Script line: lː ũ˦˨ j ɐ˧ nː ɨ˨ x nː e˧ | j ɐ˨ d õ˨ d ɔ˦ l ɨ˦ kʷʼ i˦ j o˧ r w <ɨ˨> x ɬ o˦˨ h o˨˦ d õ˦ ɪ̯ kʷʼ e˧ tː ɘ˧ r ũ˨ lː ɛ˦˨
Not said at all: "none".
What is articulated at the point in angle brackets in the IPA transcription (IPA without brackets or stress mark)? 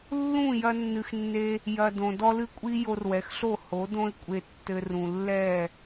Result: ɛ˨